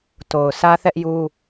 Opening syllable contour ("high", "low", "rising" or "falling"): low